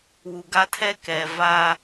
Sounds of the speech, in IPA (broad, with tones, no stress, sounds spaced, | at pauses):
w u˨ ɡ a˦ tʰ ɛ˦ k ɛ˨ v a˦